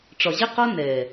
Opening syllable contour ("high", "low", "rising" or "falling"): low